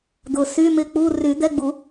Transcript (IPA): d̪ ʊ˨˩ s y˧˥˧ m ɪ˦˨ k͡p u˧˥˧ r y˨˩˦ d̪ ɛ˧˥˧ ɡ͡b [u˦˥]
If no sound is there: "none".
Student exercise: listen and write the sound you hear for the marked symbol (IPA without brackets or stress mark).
u˨˩˦